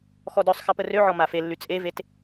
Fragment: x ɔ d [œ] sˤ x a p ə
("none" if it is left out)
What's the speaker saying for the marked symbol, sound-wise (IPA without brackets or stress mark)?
œ